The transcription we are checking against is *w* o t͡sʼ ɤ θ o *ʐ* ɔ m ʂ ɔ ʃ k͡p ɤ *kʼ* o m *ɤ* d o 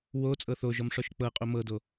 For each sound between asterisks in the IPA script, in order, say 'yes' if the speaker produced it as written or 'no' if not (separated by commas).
yes, no, no, yes